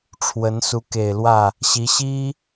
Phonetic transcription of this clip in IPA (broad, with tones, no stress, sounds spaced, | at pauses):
ʈ͡ʂʰ w ə˧˥ n s u˧˥ k e˨˩ ɪ̯ l w ä˥˩ | ɕ i˧˥ ɕ i˥